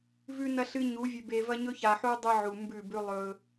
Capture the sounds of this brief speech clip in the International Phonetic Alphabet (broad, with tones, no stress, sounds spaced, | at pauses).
v ʉ˨ n ɐ˨ ɬ ɨ˨ ɲ u˨˦ vʲ ʉ˨ b e˨ v ɐ˦ ɲ ɵ˦ ç a˨ ħ u˦ dˤ i˦ ʕ u˨ m b ʉ˦˨ b ʉ˦ lˠ ɵ˦